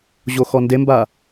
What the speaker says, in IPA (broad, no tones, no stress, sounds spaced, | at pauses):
ʑ o x ɔ n d e m b a